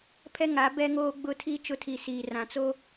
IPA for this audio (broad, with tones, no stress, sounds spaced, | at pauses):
pʰ ɛ˦ ŋ a˨˦ b ɛ˦ ŋ oː˦ ɡ͡b ʊ˦ tʰ i˦ t͡ʃ ʊ˦ tʰ i˨ s iː˨ r ã˨ t͡s o˦